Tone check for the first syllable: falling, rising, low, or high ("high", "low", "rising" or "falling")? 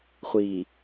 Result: low